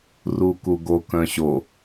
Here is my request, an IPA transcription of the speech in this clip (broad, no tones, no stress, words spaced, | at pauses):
rukuɡo kœ̃ɕo